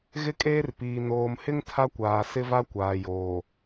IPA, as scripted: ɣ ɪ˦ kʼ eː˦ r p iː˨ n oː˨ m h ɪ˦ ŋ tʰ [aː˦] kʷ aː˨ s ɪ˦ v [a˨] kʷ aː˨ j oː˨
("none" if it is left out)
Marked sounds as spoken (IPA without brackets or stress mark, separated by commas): a˦, a˦